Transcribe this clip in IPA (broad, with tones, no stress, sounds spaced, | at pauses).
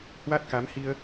h w a˦˥ t̚ k a˨˦ m h i˧ ə̯